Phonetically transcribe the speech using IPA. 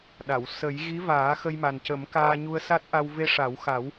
ɗ a˨˩˨ w s ə˨˩˦ j ɣ i˧˥ v aː˨˩˦ x ə˧ j m a˨˩ n c ə˨˩˦ m k aː˧ ɲ u˧ ə̯ s a˦˥ t̚ ʔ a˧ w v e˧ ʂ a˨˩˦ w x a˨˩˦ w

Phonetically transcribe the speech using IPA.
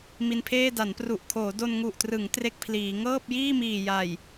m i˧ n pʰ eː˥˩ d a˩˦ n p r u˨˩ ʔ kʰ oː˩˦ d o˧ n ŋ u˨˩ ʔ t r ɯ˩˦ ŋ t r e˥˩ k̚ pʰ l iː˩˦ ŋ ɤː˥˩ p̚ j iː˥˩ m iː˨˩ j a˨˩ j

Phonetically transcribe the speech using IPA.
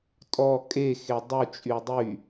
tʼ ɔ kʼ e x e dˤ u t͡ʃʼ y dˤ y

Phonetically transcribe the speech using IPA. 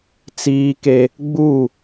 t͡s iː˦ k e˦ | ɡ͡b u˦˨

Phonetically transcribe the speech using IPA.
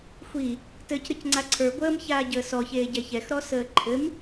xʷ i | t ɘ c ɾ ɨ c ŋ͡ǀ a ǀʰ ə˞ ɡʷ əː m ç aː ɟ əː s ɔ ç eː ɟ ɛ ç ɛ x ɾ ɔ s əː ǃʰ ɘ m

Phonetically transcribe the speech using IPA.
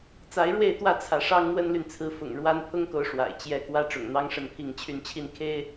t͡s a˨˦ ɪ̯ ɻ w e˥˨ ɪ̯ t̪ w ä˥˨ t͡sʰ ä˨˦ ʂ ɑ˦ ŋ n̪ w ə˦ n l y˨ n t͡sʰ ɹ̩˨˦ f ʊ̰˨˩ ŋ ɻ w a˦ n pʰ ʊ˦ ŋ k o˨˦ ʊ̯ ʂ w a̰˨˩ ɪ̯ t͡ɕ j ɛ˨˦ k w ä˦ ʈ͡ʂ ʊ̰˨˩ ŋ n̪ ɑ˦ ŋ ʂ ə˥˨ n pʰ i˥˨ ŋ t͡ɕʰ y˥˨ n t͡ɕʰ i˥˨ n kʰ e˦ ɪ̯

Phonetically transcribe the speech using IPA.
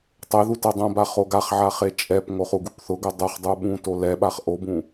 tˤ e ð u t ɛ dˤ õ b a χ o ɡ a χ ʕ a χ e t͡ʃʼ ɛ p ŋ o χ u ɡ u p θ ʊ ɡ ʊ dˤ u χ dˤ u ɓ ũ t o l ɛ ɓ a χ ʔ o b ũ

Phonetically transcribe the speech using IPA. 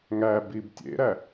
ŋ æ b i b tʲ ḛ ɾ æ

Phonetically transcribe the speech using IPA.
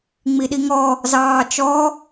ŋ͡m i ɗ i ŋ ɔ | z ɑː t͡ʃ ɔ

